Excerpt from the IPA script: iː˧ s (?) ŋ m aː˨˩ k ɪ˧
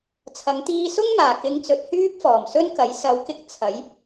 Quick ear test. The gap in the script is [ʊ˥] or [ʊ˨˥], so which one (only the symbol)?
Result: ʊ˥